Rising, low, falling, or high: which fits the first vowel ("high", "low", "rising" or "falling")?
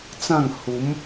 falling